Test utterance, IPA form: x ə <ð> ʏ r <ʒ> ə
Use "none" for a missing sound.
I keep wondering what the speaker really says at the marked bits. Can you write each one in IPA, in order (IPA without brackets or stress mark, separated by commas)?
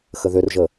ð, ʒ